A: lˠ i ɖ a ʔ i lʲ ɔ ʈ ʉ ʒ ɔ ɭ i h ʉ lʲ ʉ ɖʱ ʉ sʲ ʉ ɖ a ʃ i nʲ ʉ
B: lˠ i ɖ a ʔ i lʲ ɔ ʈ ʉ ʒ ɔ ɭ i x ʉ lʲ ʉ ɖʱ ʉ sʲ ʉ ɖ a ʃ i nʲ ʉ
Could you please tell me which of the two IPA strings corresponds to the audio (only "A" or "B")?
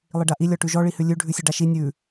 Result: A